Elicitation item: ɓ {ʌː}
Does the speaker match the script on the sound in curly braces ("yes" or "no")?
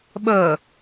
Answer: no